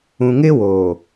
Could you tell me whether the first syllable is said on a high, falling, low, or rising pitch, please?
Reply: low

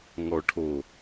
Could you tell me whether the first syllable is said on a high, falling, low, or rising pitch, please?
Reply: low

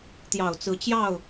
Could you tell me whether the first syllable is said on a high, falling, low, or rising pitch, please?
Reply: low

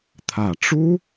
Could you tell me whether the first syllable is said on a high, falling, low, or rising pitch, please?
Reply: low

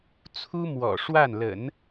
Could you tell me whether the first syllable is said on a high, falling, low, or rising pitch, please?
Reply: high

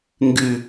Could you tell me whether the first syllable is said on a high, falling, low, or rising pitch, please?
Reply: falling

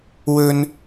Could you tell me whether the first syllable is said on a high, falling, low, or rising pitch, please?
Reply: high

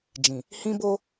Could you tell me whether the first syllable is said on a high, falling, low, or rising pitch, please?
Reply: low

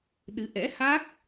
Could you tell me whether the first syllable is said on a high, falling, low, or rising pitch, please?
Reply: rising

